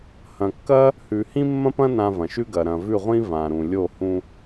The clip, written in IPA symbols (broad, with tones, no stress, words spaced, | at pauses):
hɐ̃˨kːɐ˦ | hʉ˨hĩ˦mːɐ̃˦pɐ̃˦ nã˧vɐ̃˨ʃʉ˦ɡɐ˨ ɾɐ̃˨vʉ˦˨ʁʷĩ˦ vã˨ ɾũ˨lʲo˦˨ hũ˧